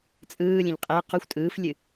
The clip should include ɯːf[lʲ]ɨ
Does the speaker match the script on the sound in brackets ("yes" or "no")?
yes